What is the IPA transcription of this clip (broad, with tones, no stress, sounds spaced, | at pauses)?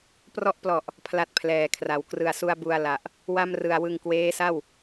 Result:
p r ɔ˦˥ ʔ p l ɔ˨˩ ʔ | pʰ l a˥˩ t̚ pʰ l ɛː˨˩ kʰ r a˩˦ w k r ɯ˨˩ a̯ s u˧ a̯ b u˧ a̯ l a˨˩ ʔ | w a˥˩ m r ɯ˨˩ a̯ w ɯ˧ ŋ k w eː˦˥ s a˥˩ w